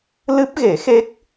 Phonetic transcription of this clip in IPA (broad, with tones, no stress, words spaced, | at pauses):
lɨ˦˥p̚ɣe˨˩˦xe˦˥k̚